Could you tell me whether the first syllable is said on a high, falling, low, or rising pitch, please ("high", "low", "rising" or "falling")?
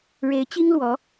rising